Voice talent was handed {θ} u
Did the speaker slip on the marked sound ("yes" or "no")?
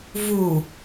yes